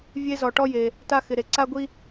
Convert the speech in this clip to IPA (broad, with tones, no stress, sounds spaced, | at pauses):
vʲ e˦ z ɔ˨ ʈ ɔ˦ j e˨ | t a˦ x ɪ˨ ɾ e˨ ǀ a˦ ɡʷ i˦